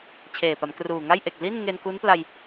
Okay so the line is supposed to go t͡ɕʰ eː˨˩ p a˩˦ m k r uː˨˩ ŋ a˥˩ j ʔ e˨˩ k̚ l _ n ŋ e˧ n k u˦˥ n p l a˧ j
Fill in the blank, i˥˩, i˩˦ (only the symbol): i˥˩